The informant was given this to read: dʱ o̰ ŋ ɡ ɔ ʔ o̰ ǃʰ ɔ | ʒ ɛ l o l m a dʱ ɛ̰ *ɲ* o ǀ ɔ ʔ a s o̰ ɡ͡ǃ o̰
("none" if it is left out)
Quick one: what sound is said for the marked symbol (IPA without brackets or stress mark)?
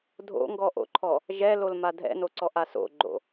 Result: n